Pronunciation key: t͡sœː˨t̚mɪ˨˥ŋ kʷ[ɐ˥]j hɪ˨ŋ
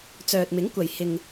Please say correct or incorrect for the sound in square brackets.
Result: incorrect